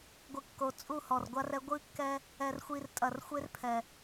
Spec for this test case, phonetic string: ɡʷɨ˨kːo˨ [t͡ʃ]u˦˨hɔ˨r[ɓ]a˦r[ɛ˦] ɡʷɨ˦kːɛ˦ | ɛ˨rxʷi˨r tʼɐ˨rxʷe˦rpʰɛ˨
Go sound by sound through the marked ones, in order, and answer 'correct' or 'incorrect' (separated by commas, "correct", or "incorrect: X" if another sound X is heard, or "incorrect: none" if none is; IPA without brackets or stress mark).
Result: incorrect: t͡sʼ, incorrect: ɡʷ, correct